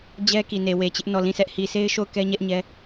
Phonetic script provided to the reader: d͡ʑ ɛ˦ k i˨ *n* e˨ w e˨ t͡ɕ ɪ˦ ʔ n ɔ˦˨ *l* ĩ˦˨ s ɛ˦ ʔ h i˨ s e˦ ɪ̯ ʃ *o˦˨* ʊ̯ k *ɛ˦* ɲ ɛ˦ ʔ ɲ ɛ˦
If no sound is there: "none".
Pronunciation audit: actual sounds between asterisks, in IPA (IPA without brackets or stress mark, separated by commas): n, l, o˦˨, ɛ˦